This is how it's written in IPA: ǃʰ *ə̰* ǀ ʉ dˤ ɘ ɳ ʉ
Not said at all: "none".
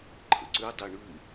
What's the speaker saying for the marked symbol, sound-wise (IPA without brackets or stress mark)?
ə̰